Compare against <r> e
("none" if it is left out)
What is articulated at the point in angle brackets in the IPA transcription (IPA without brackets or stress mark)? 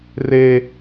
r